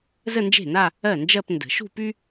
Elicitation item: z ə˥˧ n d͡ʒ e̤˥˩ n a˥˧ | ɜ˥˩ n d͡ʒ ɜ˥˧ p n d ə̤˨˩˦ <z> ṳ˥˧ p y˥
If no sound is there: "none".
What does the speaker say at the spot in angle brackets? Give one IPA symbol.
ʃ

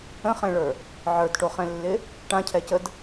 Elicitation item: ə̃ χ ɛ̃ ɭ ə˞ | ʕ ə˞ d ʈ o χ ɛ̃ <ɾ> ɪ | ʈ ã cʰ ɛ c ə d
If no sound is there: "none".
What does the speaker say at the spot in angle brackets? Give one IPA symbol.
lː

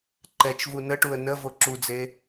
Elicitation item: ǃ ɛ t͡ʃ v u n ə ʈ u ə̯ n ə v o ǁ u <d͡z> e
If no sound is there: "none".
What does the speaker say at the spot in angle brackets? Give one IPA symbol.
d͡z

